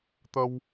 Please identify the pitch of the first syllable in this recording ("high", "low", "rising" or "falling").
high